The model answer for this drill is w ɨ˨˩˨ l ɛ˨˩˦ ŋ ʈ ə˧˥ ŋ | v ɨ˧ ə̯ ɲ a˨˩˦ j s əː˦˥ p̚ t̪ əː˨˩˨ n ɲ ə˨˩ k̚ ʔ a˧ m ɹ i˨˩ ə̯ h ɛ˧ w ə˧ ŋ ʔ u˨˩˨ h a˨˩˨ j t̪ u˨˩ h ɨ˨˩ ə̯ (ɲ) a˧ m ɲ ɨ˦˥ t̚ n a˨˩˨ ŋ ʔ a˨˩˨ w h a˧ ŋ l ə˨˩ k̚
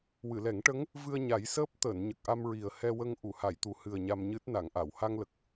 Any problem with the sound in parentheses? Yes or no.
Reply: no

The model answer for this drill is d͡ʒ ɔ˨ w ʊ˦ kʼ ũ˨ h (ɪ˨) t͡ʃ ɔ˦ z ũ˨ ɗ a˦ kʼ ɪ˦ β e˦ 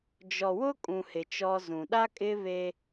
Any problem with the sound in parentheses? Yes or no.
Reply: no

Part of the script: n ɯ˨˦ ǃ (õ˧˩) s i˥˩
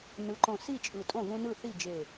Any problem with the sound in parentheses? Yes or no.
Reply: no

